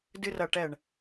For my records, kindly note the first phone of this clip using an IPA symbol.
d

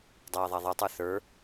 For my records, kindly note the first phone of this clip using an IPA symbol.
dˤ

